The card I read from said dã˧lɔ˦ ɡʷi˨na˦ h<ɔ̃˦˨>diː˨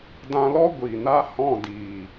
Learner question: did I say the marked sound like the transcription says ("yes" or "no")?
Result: yes